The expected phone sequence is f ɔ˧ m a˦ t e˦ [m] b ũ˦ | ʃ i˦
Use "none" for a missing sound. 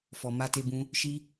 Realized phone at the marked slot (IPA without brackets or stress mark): none